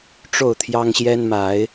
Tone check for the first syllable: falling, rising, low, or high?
falling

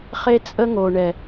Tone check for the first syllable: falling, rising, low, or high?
high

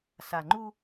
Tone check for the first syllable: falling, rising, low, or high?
low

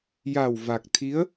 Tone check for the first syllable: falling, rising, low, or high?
low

